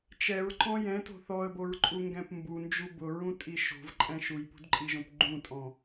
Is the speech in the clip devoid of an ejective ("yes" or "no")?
no